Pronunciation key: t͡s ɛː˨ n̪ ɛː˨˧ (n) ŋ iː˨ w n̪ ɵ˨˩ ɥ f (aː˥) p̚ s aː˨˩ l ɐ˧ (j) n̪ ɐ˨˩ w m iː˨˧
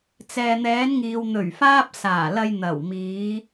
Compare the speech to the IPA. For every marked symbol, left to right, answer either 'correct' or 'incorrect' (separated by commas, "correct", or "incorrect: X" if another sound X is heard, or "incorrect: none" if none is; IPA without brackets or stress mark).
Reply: correct, correct, correct